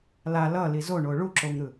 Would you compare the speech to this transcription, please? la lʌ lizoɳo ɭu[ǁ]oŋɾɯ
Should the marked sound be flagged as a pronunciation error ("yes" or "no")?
no